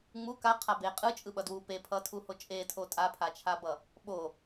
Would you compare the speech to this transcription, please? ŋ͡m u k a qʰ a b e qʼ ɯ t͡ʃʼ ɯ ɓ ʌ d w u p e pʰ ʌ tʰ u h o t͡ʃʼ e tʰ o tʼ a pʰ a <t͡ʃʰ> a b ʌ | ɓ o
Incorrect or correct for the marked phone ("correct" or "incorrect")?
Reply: correct